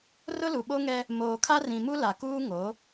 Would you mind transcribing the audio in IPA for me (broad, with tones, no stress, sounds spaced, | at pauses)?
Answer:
r ʊ˦ l u˨ ɓ o˦ ŋ ɛ˦ | m oː˨ kʰ a˦ r ĩ˨ m u˦ l a˨ k uː˦ ŋ o˨˦